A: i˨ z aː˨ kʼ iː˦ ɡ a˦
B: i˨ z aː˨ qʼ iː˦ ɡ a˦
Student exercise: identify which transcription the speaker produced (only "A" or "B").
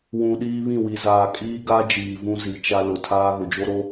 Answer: A